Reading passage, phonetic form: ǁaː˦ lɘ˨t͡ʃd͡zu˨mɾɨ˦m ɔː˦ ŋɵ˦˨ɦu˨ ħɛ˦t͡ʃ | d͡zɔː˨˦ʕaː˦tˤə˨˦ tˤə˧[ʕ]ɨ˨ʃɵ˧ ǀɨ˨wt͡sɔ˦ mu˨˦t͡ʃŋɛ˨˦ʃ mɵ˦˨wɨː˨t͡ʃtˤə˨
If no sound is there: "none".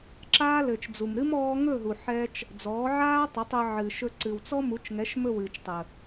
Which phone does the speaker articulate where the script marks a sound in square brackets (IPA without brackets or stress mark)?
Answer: ʕ